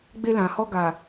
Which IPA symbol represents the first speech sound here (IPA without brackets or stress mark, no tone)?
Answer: ɡ͡b